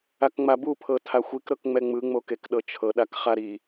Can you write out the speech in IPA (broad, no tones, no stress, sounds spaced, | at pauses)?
a k ŋ͡m a b u pʰ ɤ tʰ a xʷ i k ɾ ɤ k ŋ͡m ɛ ŋ͡m ɯ ŋ͡m o k e k ɗ ɤ t͡ʃʰ ɤ ɗ a k χ a ɾ i